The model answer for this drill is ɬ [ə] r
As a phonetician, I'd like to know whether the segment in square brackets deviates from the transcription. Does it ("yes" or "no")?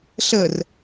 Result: no